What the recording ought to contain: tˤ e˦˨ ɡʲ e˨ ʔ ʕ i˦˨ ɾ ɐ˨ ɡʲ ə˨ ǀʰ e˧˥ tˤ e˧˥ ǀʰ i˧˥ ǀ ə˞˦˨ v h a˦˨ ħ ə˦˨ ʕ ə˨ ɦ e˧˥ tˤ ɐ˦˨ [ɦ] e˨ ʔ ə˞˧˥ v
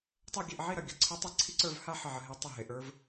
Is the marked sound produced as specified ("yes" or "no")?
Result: yes